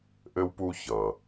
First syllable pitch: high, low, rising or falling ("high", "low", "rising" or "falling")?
high